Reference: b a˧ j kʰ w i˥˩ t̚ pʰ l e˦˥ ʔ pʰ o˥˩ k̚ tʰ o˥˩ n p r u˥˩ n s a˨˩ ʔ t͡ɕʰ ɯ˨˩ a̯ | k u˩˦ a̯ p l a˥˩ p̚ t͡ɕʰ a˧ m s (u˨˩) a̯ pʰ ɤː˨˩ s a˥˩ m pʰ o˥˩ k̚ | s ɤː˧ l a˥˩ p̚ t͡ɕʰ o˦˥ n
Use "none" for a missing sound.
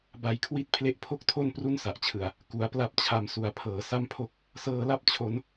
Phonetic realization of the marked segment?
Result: u˨˩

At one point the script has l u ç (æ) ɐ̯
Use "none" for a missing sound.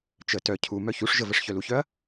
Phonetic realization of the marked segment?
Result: œ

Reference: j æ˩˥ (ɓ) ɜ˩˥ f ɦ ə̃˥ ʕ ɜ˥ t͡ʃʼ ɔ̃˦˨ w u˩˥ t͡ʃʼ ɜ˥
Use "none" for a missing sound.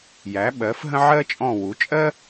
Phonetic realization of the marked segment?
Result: ɓ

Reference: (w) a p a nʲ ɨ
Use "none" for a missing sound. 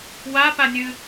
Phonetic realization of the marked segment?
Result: w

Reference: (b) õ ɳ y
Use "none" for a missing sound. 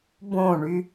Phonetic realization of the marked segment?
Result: b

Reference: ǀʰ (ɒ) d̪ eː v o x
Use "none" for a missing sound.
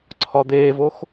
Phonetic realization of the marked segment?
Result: ɒ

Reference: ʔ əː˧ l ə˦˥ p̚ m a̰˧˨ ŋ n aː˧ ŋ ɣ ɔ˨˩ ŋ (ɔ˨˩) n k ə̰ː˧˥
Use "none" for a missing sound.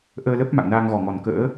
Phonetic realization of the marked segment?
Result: ɔ˨˩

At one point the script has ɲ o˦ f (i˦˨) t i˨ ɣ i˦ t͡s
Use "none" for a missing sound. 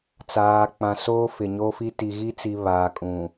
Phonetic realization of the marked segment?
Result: i˦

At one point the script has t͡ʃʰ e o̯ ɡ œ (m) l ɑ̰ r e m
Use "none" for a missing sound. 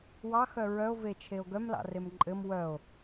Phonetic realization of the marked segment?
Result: m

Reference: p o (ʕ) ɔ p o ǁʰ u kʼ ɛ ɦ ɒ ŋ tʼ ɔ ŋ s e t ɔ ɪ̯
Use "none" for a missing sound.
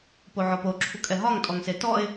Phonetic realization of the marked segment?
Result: ʕ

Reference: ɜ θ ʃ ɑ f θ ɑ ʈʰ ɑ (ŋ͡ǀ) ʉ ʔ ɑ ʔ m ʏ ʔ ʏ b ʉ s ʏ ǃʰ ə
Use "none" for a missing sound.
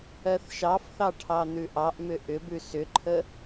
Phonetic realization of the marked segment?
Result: n̪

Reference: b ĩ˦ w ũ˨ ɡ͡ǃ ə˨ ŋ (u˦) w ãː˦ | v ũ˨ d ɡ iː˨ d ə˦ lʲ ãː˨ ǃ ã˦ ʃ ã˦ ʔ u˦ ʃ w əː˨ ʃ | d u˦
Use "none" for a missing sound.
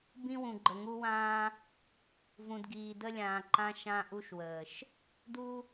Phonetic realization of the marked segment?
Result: u˦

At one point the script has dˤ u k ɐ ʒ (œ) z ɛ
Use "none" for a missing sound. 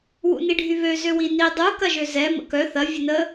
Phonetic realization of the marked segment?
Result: ø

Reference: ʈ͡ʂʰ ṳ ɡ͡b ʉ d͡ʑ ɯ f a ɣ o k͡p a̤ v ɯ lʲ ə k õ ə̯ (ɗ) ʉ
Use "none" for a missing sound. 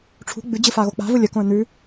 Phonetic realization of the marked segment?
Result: n̪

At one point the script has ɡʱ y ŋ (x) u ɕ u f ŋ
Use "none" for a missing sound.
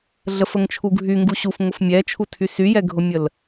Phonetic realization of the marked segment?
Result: ɡ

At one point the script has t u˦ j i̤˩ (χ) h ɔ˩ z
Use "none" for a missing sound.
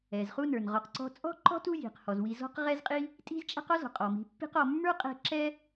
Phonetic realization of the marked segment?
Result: q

